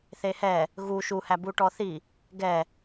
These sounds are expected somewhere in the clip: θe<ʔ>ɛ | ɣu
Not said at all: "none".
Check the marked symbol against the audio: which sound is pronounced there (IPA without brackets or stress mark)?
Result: h